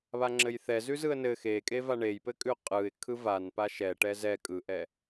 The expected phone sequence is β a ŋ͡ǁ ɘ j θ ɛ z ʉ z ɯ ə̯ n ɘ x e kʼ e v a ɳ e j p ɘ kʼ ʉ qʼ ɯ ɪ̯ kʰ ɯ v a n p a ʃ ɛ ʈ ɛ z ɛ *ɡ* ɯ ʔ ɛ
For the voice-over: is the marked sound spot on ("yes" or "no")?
no